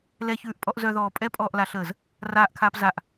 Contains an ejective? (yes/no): yes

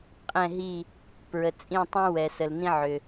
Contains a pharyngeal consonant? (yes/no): yes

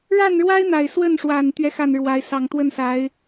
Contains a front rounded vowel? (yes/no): no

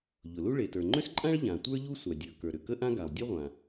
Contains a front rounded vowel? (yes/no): yes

